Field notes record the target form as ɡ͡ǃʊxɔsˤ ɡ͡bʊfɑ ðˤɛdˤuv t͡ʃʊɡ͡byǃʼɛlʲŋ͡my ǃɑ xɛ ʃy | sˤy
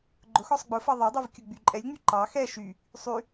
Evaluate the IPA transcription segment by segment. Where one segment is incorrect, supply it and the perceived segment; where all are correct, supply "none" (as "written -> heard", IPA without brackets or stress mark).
t͡ʃ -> kʲ